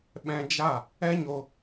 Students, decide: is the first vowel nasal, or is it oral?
nasal